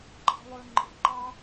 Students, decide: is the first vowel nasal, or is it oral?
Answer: oral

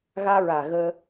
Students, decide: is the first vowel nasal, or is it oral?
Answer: oral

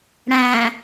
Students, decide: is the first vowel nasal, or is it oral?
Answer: nasal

